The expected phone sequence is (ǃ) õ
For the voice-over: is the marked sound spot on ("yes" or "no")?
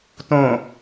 no